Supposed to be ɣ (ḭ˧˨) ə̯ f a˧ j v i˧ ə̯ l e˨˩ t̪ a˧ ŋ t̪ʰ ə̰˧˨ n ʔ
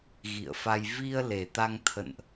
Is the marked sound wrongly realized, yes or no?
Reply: no